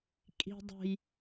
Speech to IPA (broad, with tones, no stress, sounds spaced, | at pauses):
kʼ i̤˨ dˤ o̤˨ j